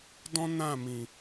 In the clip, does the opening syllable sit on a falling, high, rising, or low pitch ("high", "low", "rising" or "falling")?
high